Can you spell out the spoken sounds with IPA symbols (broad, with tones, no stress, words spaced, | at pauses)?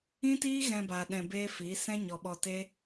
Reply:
ĩ˦tiː˦ ɣɛ̃˧ ba˨ ɗɛ̃˧beː˦fiː˨˦ sɛ̃˦ɲɔ˨ɓɔ˧ te˦